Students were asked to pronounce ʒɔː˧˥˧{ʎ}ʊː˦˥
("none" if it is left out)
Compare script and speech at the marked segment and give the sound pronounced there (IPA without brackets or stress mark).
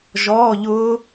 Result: ʎ